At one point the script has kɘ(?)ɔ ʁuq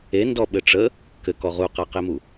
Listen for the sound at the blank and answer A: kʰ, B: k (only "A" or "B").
B